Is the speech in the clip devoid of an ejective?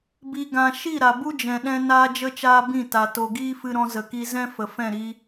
yes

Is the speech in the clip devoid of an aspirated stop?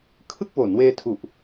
no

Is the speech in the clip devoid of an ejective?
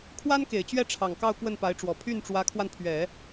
yes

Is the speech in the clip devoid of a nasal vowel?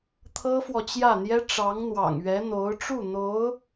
yes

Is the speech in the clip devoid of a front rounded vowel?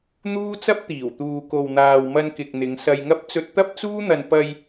yes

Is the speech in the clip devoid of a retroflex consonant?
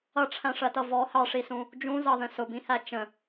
no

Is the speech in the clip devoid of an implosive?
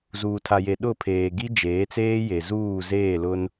no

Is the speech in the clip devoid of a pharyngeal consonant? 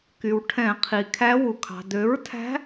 yes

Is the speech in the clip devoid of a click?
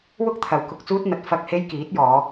yes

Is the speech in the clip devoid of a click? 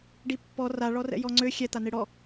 no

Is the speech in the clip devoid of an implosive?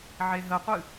yes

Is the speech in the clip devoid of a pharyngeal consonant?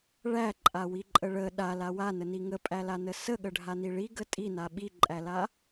yes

